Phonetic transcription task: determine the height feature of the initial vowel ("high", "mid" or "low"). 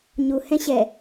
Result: high